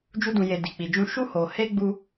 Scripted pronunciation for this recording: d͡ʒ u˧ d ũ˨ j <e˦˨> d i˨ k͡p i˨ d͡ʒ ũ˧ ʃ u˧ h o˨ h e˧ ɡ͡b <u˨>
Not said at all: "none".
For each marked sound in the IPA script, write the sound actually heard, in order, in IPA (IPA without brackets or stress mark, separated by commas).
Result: e˨, u˧